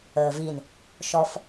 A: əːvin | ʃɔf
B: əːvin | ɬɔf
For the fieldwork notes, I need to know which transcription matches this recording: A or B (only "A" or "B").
A